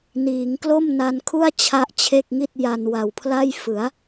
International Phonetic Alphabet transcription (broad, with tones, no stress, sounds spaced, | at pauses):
n iː˩˦ ŋ k l o˥˩ m n a˧ n kʰ u˥˩ a̯ t͡ɕʰ a˦˥ ʔ t͡ɕʰ e˥˩ k̚ ŋ i˥˩ t̚ j a˧ n w a˨˩ w pʰ l a˥˩ j f ɯ˩˦ a̯